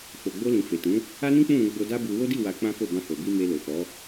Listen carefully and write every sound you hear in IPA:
f o˨ ɡ͡b o˧ l ĩ˨ f e˨ t ũ˨˦ | a˦ n ĩ˦ k͡p ũ˦˨ ɾ ũ˧ ɡ͡b o˧ d a˦ b u˧ w o˦ d i˦˨ w a˧ k͡p ã˦ f o˦˨ b ã˧ h o˨ b i˧ m e˧ l o˨ f ɔ˨˦

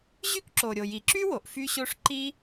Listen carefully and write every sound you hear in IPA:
ʑ y˥ k ǁ o˩ ɾʲ o˩ j i˩ ǁ y˥ w o˩ ʔ f y˥ ɕ o˥ ʂ ǃ i˥

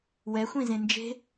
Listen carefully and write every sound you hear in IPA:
w ɛ xʷ ĩ z ẽ n d͡ʒ e̤

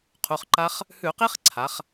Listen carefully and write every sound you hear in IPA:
qʰ u˩˧˩ χ ǃ a˦˥ χ | h ʉ˧˩˧ q i˦˥ χ ǀʰ a˩˧ χ

